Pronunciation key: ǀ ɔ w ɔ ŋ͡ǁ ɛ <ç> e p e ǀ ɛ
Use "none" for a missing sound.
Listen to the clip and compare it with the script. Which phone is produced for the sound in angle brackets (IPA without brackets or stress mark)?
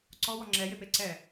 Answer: j